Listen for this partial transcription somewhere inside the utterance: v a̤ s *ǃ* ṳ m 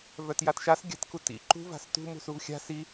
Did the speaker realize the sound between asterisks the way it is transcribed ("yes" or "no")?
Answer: no